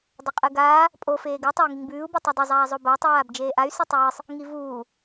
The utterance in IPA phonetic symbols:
dˤɐqʼɨɡaː | pʼo feːɡɨ tˤay̯ŋiŋbʉːu̯ bitˤɵdˤɐ zˤaːzˤobatˤ waːbd͡ʒeːʔay̯ sitˤʉwɨsˤ | ŋivuː

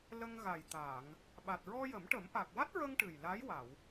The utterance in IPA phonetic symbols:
lə˧ŋɣa˨˩jt̪aː˨˩˨ŋ | ɓa˨˩t̚ɹɔ˧jə˨˩˦mʈə˨˩˦m ʔa˨˩k̚wa˦˥t̚ɹə˧ŋ ʈɨ˨˩jla˧˥j wa˨˩˨w

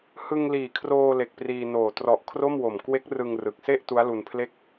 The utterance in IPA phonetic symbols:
hɯ˧ŋliː˨˩kʰroː˧ le˨˩k̚priː˧noː˨˩ trɔ˨˩ʔkʰro˥˩mwo˨˩m kwe˦˥k̚rɯ˧ŋrɯ˨˩k̚se˥˩ʔ tu˦˥a̯lu˧n pʰle˦˥k̚

